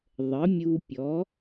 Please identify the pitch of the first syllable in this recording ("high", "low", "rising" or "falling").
rising